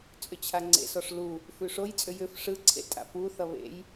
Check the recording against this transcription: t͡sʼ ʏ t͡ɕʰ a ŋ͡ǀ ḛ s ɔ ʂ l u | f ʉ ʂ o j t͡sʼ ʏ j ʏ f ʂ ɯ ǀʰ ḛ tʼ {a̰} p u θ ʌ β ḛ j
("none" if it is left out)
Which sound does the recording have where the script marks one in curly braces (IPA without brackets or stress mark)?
a̰